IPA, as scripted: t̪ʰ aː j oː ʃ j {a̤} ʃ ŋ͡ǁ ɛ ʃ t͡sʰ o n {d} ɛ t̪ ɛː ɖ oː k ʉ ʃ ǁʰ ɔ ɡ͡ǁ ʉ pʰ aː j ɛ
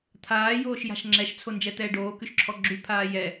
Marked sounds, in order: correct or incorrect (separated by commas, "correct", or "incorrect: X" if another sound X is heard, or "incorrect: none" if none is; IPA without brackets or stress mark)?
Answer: correct, incorrect: d͡ʒ